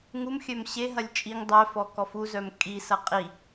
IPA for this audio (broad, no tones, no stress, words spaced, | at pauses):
ŋumxʲœm ɕeɦɐlʲ t͡ʃʼiŋ dˤœfɔkɔf uzœm kʼisɐ qʼi